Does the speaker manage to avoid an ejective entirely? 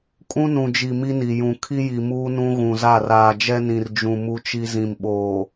no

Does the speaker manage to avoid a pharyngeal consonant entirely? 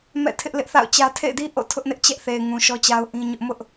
yes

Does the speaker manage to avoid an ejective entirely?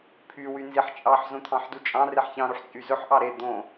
no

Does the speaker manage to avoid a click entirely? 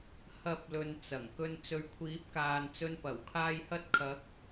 yes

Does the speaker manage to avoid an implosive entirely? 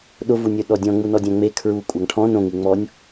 no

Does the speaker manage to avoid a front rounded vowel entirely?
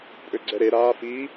no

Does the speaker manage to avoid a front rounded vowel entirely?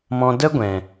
yes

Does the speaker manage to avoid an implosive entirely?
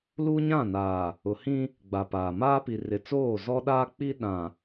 no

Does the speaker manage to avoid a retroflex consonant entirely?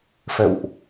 yes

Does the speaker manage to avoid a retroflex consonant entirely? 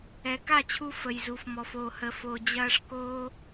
no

